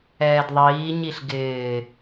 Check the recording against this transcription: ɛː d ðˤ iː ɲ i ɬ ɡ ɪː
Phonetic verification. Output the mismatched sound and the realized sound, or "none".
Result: none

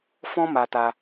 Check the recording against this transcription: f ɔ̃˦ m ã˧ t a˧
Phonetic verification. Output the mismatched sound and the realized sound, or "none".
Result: ã˧ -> a˧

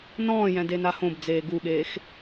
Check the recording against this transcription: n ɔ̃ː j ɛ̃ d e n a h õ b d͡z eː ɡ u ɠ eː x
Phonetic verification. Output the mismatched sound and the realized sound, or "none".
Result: none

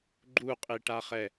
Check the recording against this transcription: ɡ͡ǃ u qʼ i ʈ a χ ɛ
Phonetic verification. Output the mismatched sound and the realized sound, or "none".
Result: none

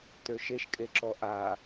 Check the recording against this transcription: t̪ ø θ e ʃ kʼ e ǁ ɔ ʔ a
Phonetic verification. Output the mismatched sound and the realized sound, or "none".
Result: θ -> ʃ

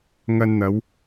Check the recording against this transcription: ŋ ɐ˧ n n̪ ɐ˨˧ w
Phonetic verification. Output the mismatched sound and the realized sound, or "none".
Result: none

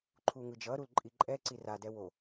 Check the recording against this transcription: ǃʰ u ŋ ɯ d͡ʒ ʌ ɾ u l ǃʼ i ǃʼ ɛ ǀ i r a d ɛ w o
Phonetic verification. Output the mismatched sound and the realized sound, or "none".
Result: none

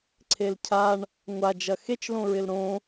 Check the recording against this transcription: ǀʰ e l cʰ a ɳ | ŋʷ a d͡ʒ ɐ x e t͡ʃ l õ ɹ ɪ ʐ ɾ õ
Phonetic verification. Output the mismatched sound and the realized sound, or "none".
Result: ʐ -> l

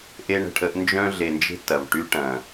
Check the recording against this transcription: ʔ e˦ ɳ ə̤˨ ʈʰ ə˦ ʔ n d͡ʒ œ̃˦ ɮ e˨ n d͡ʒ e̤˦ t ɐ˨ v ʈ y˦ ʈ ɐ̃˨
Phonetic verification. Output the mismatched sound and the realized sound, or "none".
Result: none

